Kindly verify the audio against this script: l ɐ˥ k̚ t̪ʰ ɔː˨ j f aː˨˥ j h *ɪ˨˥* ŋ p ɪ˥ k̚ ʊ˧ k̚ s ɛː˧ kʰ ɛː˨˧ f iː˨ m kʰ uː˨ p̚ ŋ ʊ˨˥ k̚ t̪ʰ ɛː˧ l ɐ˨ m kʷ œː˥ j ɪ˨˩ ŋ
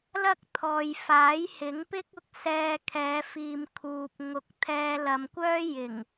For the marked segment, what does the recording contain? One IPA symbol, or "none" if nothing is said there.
ɪ˨˥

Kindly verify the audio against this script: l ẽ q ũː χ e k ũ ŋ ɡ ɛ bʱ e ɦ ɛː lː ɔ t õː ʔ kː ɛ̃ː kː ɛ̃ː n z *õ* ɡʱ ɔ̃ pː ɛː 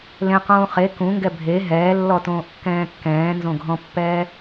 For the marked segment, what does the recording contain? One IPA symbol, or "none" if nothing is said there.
õ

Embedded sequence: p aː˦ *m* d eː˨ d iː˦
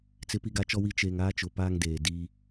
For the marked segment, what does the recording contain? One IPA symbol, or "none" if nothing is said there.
ŋ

